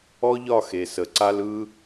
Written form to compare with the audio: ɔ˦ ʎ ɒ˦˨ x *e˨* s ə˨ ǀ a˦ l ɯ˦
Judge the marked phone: correct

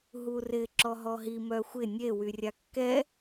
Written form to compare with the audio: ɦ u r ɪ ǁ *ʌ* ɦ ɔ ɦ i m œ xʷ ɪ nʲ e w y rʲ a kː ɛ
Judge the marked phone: incorrect: ɔ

